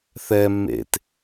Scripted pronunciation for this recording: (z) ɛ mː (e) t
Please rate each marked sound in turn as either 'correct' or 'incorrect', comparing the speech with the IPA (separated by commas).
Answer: incorrect, incorrect